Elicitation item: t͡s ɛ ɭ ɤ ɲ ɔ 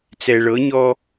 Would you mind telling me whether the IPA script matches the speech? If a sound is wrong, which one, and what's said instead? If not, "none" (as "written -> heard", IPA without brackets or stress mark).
none